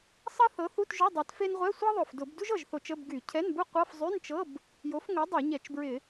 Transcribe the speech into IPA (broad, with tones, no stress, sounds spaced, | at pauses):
sˤ ɤ˥ θ ɤ˨˥ θ u˧˥˧ t ʒ ʊ˧˥˧ dˤ a˨˥ t f e˥ n ʁʷ ɛ˧˥˧ sʷ ɤ˥ ðˤ ʊ˨˩ f d ʊ˧˩˧ b d u˥ ʒ ɤ˨˩ ʒ θ o˧˩˧ t͡ʃ ə˧˥˧ b ɡ y˧˩˧ cʰ ɛ˧˥˧ n b u˥ qʷ ɤ˧˥˧ f zˤ y˧˥˧ n t͡ʃ ɤ˧˥˧ b | j o˨˥ f ŋ o˨˥ dˤ e˧˩˧ ɲ ɛ˧˩˧ t͡ʃ b ɹ ɪ˧˩˧